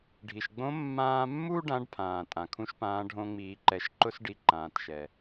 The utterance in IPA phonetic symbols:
ɖʱ i˩ ʃ ɡ͡b õ˧˥ mː ãː˧ mː u˥ ɖ ã˧˥ ɖ pʰ ãː˩ tʼ ã˩ kʰ ũ˥ ʃ p ãː˧˥ ɖʱ õ˧ ŋ͡m iː˩˧ ǃ ɛ˩˧ ʃ ǃ ʊ˥ s ɖ i˧ ǃ ãː˩˧ t ʃ ɛ˩

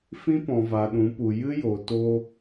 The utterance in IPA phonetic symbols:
f ĩ˦ p ɔ̃˨ v a˨ ɗ ũ˨˦ p u˨ j ɨ˦ j o˨ t o˧

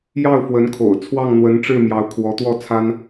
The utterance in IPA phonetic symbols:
j ɑ˥˩ ʊ̯ f w ə˧˥ n kʰ o̰˨˩ ʊ̯ t͡sʰ w ɑ˥˩ ŋ n̪ w ə˧˥ n ʈ͡ʂ ɻ̩˥˩ m j ɑ˧˥ ʊ̯ kʰ w ɔ˧˥ t̪ w ɔ˥˩ t͡sʰ a˥ n

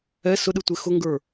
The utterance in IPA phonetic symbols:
ɛ s ʊ ɗ ɯ tʷ e x ʊ ŋ ɡ ə˞

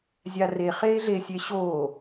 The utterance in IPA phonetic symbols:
zʲ a r e χ eː ɮ e sʲ e ɕ oː

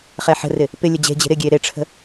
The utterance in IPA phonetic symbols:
χ ɛ ħ ə̤ r ɪ | p ɪ lʲ ə d͡ʑ e̤ d͡ʑ e̤ ɾ ɪ ɡʲ e ɾ e ʈ͡ʂʰ ə̤

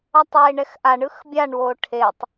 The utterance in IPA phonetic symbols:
ʌ tˤ w e ɳ ɛ x ʔ a ɳ ɯ x bʲ a ɳ w o ʈʰ e tˤ

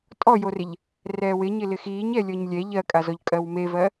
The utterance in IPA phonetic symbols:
tʼ ɔ j o r ɪ ʎ | r ɛː w ɪ ɲ ɪ l ɪ x iː ɲ ɛ lʲ ɔ ɲ lʲ ɛ ʎ ɜ kʼ a z ɔ ʎ kʼ ɜ w m e v ɜ

